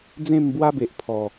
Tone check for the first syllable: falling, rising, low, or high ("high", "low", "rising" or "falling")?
falling